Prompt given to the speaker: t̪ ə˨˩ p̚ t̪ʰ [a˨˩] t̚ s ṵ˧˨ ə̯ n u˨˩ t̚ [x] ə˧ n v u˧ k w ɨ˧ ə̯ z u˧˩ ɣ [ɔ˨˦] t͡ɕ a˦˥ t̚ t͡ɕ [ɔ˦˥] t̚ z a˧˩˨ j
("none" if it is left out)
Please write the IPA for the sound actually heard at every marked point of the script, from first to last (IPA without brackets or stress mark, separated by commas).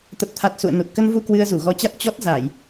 a˨˩, k, ɔ˨˦, ɔ˦˥